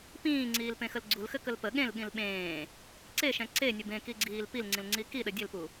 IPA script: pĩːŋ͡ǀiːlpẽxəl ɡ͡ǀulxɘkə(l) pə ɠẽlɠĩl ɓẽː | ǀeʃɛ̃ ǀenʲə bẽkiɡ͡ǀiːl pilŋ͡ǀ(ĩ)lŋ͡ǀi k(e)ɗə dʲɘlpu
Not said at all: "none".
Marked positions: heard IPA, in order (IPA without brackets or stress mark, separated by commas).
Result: l, ĩ, i